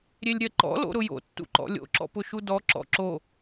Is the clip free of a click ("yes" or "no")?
no